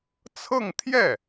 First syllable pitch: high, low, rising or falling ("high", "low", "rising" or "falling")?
falling